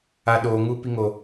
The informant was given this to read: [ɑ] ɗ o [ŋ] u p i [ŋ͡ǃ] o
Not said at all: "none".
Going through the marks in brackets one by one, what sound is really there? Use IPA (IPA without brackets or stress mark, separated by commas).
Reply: a, ŋ, ŋ